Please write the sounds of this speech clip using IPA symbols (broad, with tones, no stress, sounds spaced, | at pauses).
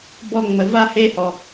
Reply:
b ɔ˦ ŋ͡m ə˨ v a˥ h e˦ h ɔ˩